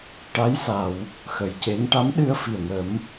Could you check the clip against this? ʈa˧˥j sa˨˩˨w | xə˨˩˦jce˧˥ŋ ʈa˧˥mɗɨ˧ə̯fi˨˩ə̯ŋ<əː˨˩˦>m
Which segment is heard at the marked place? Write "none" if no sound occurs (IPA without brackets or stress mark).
ə˨˩˦